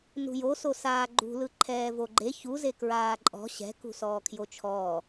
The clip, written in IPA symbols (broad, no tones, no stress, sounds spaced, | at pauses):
n ṳ j o s o s aː ɡ͡ǃ ṳ l ɯ ǃʰ ɛː v o ɡ͡ǃ e ç u z e k ɹ aː ǃʼ ɔ̤ ɕ ɛ̤ k ṳ s ɔː kʰ j o t͡ʃʰ ɔː